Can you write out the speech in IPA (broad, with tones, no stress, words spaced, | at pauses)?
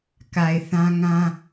ka˨ɪ̯ θã˦ŋã˦